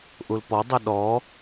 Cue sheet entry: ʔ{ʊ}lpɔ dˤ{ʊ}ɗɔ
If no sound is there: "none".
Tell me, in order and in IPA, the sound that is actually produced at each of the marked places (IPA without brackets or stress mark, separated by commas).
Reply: u, ʊ